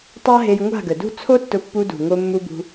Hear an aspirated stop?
yes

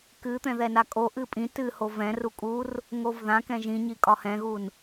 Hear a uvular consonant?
no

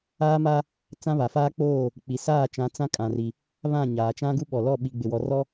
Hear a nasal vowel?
yes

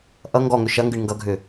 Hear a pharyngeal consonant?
no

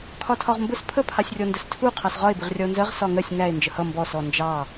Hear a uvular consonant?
yes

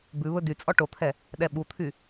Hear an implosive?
yes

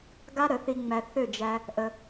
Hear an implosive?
no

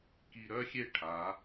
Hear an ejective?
no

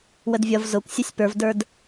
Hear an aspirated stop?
no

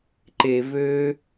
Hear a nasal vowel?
no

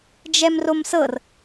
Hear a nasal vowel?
no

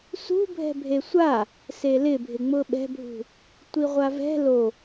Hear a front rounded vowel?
no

